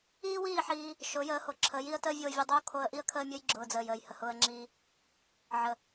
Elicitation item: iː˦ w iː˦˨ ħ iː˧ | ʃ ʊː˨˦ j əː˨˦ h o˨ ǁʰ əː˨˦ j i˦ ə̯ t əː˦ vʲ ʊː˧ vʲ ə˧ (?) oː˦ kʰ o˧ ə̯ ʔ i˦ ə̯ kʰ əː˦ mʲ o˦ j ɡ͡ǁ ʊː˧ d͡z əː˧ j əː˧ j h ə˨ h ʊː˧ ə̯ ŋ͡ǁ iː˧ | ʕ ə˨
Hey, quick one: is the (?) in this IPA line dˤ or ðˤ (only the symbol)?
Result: dˤ